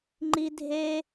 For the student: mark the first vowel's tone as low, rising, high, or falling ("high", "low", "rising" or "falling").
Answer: high